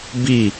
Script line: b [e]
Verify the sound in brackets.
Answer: incorrect: i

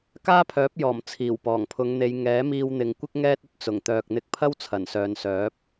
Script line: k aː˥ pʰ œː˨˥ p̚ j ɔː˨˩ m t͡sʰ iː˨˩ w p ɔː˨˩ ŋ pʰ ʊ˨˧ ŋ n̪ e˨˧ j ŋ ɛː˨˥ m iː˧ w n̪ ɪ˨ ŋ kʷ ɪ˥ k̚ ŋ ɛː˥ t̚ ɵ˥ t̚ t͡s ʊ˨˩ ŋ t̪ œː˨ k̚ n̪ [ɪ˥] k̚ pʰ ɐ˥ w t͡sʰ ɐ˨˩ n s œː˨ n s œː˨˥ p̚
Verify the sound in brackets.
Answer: incorrect: ɪ˧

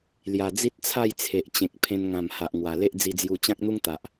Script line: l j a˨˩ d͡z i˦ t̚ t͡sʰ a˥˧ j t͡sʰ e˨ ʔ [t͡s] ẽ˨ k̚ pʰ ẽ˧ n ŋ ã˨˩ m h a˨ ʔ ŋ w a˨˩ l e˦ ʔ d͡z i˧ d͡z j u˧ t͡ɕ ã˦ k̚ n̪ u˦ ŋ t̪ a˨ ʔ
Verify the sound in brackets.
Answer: incorrect: t͡ɕ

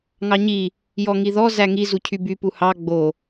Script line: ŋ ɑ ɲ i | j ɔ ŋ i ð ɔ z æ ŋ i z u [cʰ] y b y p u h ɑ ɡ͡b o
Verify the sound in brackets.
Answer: correct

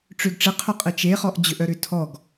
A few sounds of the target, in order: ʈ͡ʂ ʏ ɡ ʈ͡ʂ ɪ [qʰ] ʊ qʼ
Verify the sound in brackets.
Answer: correct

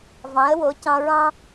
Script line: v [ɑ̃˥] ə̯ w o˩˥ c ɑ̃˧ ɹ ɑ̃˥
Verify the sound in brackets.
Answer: incorrect: ɑ̃˩˥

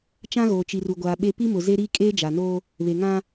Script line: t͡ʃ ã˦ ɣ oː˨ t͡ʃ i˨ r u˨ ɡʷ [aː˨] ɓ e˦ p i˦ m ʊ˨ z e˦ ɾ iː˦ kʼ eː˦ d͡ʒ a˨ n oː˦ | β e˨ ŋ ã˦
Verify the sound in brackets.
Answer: correct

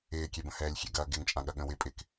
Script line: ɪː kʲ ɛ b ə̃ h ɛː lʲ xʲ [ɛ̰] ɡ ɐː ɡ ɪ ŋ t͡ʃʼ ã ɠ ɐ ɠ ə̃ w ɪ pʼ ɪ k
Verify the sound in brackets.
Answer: correct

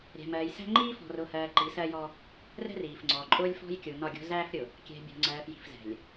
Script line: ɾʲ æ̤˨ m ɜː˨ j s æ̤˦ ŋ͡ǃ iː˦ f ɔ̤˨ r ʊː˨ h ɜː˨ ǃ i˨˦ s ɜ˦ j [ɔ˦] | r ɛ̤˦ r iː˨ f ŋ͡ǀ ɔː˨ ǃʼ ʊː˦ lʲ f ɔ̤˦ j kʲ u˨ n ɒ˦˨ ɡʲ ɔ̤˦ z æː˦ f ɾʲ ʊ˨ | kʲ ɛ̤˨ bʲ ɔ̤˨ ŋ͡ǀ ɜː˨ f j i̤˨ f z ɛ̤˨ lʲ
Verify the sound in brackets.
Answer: correct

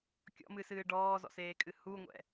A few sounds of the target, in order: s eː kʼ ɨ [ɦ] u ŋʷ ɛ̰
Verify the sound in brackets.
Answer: incorrect: h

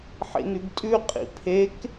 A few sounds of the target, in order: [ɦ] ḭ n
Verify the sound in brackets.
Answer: incorrect: ħ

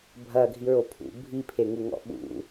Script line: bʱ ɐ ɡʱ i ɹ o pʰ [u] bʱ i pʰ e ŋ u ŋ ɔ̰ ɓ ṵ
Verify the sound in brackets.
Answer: incorrect: ṵ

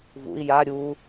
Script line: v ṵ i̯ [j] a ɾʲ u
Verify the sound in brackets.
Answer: correct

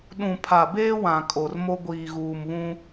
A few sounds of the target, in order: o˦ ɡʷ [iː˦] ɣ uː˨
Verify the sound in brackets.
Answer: incorrect: iː˨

